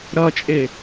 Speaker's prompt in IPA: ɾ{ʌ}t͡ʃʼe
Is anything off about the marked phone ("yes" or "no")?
no